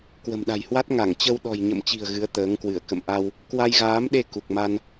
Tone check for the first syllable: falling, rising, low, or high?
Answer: low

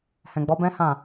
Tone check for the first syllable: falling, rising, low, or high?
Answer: low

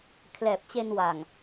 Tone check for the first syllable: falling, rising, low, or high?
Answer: low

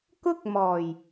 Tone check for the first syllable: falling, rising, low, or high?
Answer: high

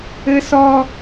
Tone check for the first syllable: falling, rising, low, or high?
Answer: high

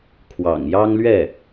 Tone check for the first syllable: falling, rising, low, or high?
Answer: low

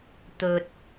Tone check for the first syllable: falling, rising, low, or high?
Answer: low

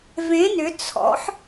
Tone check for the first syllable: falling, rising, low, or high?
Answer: rising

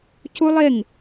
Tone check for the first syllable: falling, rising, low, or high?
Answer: high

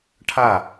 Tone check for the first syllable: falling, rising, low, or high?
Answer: falling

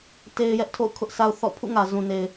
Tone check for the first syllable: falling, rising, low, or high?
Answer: high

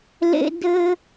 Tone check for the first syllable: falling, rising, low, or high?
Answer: high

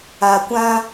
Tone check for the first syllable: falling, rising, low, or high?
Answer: low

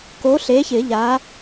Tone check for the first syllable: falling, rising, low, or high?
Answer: rising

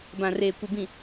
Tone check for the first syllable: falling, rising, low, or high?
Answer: low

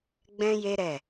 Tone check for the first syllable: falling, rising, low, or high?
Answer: high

